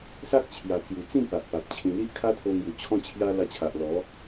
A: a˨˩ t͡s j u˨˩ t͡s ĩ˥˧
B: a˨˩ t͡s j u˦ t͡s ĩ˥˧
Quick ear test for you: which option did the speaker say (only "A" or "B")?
A